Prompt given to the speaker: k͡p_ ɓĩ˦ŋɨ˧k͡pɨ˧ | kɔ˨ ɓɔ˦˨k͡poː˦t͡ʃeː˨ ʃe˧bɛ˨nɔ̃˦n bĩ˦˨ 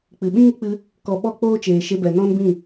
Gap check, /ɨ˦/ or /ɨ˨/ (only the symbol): ɨ˨